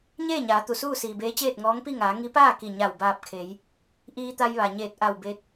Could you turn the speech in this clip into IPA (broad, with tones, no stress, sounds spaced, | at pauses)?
ɲ eː˥˨ ɲ aː˩˧ t̪ u˩ s uː˥˨ s iː˩ b eː˧˥ t͡ɕ eː˥˨ t̚ ŋ ɔː˧˥ ŋ p i˥˨ ŋ aː˩˧ ŋ i˧˥ p aː˥˨ k i˧˩ ɲ a˧˩ w b aː˧˩ p̚ kʰ e˩˧ j | ʔ iː˧ t̪ a˧ j ʋ a˩ ɲ eː˧˩ t̚ ʔ a˧˩ w b e˧ t̚